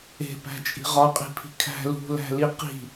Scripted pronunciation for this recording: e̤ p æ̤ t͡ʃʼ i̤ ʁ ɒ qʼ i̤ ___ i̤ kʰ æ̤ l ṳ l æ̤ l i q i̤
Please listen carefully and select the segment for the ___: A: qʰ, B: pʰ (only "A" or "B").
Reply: B